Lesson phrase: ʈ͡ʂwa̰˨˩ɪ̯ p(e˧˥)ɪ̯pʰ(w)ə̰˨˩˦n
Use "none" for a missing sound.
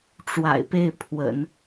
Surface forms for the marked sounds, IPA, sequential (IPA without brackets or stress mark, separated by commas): e˥˩, w